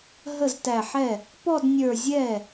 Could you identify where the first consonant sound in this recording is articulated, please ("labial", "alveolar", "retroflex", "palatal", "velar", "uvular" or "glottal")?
glottal